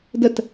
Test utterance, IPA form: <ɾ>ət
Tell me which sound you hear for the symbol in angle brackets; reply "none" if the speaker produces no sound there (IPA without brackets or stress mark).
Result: d